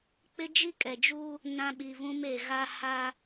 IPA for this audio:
k͡p ɪ˦ d͡ʒ i˦ kʼ ɛ˨ d͡ʒ uː˦ | n ã˦ ɓ i˨ v ũ˦ m e˨ ɣ a˦ h a˦

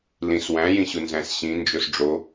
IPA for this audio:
l ĩ s w æ̃ j ĩ ɕ u n z æ̃ s ɕ ĩ n d͡ʒ o s ɖ͡ʐ o

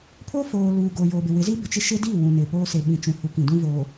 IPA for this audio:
pʰ o˦ f oː˨ l uː˨ ɡ oː˨ j oː˨ b ɪ˨ w ɪ˨˦ z i˦ b ɪ˨ t͡ʃ ɪ˦ ʃ ɪ˦ d i˦˨ w ũ˨ n ɪ˨ p oː˦ s e˨ ɓ ĩ˨ t͡ʃ ũ˨˦ h u˨ k ĩ˨ d ũ˦ v oː˨

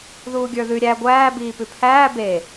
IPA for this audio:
ð uː ɡʲ ə˞ ð ʉ ɾʲ æ ɡʷ æː b iː p ʉ pʰ æː b e

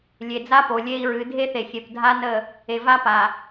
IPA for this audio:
lʲ e˨ d͡z a˦ p o˨ lʲ e˦ i̯ ɹ ɨ˨˦ dʱ e˦ θ e˨ xʲ e˨ p dʱ a˦ n ə˦˨ | e˨ v a˦ p a˨

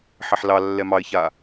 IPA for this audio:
ħ ɛ ħ l ɑ lː ɛ m ɑ ɪ̯ ç a

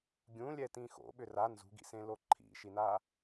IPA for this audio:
ɡʲ ũ lʲ ɛ t ĩ x o̰ ɓ ʏ r a n z ṳ ɡ ḭ s ẽ l o ǃʰ ḭ ʃ i n a

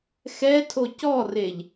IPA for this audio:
x ɛ tʰ o c ɔ r e ʎ

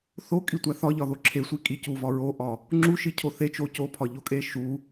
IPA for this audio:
θ o kʼ i tʷ æ θ ɒ ʎ ɒ ð o ǁʰ e sʷ i kʼ i c u v ɒ ɹ o ʔ ɒ | ŋ͡ǁ u ʃ i cʰ o θ e t͡ʃ o c o pʰ ɒ ʎ o kʼ e ʃ u

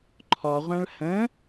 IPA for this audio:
ǃʰ ɔ ʁʷ ã ɭ h ə̃

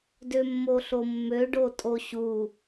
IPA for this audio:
d ø mː o ɬ o mː ø ɖ o tʼ o ɕ u

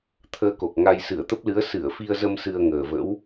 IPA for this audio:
t̪ʰ əː˧ k o˨˩ k̚ ŋ a˧ j s ɨ˧˩ ə̯ t̪ ə˦˥ p̚ l ɨ˨˦ ə̯ s ɨ˧˩ ə̯ f i˧ ə̯ z ə˧ m s ɨ˧ ə̯ ŋ əː˨˩ v ə̰˧˥ w

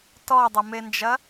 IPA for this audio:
t ɔ dˤ ɐ m e n d͡ʒ ɐ

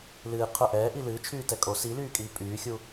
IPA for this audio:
l ɨː qʰ ʊ ʔ ɛː ʔ i l ɨː t͡ʃʰ yː t ɛ kʼ o s i l yː kʼ iː pʼ yː xʲ u

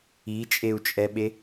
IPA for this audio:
i t͡ʃʼ e u̯ t͡ʃʼ ɛ ɓ e

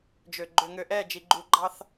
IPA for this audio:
d͡ʒ ø˨ ɡ͡ǃ ø˨ ŋ ø˨ ʔ ɛ˦˨ d͡ʒ i˨ ɡ͡ǃ u˨ ɡ͡ǃ ɑ˦ θ

